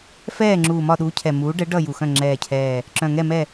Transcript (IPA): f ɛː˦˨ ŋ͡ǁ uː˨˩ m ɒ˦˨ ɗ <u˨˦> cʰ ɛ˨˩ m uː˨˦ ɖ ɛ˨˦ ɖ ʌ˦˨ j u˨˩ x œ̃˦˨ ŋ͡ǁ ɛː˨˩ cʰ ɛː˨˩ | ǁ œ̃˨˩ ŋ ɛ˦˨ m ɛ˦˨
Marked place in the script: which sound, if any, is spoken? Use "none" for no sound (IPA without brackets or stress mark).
u˨˦